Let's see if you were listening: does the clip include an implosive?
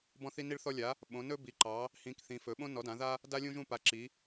yes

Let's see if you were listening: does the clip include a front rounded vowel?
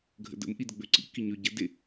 yes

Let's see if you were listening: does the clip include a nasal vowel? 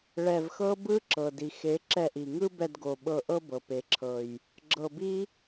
no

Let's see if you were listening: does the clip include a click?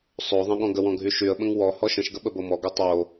no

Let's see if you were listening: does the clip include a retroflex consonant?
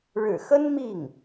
yes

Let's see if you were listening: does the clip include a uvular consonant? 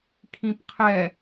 yes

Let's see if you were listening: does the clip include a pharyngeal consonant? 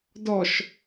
no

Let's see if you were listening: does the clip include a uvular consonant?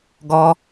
no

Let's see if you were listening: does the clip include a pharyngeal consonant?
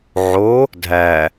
yes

